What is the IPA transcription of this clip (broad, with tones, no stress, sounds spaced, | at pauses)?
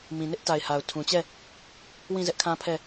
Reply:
m ĩ˨ n ɪ˦ ʔ t a˨ ɪ̯ h a˨ ʊ̯ tʰ ũ˨ t͡ɕ ɛ˦˨ | w ĩ˦˨ z ɛ˦ ʔ kʰ ã˦ pʰ ɛ˦˨